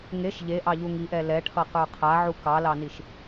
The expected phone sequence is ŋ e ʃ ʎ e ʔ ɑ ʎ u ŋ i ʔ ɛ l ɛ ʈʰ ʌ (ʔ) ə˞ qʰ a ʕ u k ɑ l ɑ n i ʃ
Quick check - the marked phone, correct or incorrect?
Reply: incorrect: q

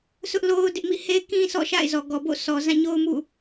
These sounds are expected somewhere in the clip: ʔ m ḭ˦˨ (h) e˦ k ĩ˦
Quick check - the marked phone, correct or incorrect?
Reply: correct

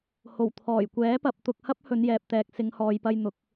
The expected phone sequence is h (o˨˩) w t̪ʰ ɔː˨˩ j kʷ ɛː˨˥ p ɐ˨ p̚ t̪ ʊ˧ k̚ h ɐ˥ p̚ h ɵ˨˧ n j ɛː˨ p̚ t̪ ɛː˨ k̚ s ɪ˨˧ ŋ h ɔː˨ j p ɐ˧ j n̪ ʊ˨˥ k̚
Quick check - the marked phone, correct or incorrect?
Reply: correct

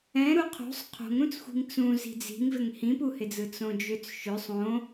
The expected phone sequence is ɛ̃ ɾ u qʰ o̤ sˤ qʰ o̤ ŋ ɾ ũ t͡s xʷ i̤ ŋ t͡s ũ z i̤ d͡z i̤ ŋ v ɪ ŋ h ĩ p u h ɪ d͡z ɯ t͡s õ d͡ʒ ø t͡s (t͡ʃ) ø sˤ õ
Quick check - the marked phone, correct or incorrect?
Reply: incorrect: ʃ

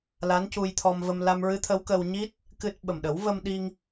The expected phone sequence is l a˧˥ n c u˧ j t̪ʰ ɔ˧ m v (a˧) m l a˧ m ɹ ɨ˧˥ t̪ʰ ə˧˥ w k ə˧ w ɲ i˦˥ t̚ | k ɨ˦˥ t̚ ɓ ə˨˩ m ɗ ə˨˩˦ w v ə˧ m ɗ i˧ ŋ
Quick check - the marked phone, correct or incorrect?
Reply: incorrect: ə˧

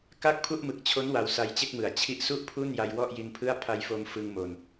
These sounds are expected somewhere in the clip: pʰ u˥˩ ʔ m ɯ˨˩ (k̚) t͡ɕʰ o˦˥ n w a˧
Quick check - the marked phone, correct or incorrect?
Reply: correct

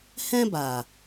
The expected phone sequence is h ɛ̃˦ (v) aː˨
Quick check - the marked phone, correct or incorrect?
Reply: incorrect: b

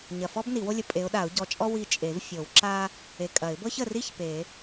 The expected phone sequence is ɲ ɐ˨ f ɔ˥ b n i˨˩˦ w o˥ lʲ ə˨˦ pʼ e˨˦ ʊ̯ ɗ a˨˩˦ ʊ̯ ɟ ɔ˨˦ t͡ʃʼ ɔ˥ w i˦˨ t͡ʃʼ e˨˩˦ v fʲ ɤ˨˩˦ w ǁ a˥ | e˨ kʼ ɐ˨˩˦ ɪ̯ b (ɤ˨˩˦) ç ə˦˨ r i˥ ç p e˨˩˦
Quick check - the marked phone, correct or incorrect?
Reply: incorrect: ɤ˥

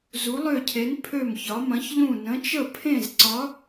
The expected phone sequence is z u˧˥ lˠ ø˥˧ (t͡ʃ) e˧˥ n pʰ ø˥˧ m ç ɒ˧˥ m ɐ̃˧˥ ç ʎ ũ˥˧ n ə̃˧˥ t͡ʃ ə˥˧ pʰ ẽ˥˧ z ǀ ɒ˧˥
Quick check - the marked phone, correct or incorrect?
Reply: incorrect: cʰ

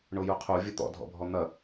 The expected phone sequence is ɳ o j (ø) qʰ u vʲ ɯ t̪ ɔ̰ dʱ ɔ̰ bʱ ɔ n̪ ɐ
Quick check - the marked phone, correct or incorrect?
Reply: incorrect: u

